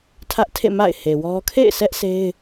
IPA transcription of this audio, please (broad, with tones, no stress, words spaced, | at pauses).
tʰä˦ʔtʰḛ˦˨ ma̰˦˨ɪ̯he˨wɔ˦ kʰḛ˦˨ɪ̯sʰɛ˦ʔ sʰe˦ɪ̯